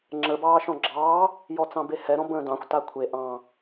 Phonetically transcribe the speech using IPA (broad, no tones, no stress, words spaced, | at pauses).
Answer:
ŋ͡ǁə bɑːʃɔ̃ɡ͡ǁɑː | jɔt͡sɑ̃behɛ ɾɔ̃bə̃ːdɑ̃xʷ takʷʰe ʔɑ̃